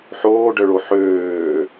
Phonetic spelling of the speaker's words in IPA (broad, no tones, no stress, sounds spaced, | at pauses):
ħ oː ɖ œ ɭ o ħ øː